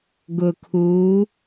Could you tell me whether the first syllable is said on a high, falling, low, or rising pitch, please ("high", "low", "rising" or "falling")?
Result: low